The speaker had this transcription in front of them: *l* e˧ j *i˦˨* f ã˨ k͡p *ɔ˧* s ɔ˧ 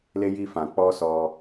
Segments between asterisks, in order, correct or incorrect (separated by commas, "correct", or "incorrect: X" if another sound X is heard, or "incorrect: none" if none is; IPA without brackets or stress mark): correct, incorrect: i˧, correct